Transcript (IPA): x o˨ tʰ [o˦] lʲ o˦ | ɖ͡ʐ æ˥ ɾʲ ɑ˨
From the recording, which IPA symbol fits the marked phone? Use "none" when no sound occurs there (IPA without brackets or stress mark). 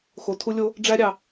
u˦